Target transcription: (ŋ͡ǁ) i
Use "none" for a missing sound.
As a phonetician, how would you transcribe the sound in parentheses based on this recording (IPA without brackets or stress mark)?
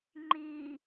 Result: ŋ͡ǃ